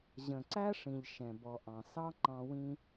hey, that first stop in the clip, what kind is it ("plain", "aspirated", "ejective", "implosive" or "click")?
click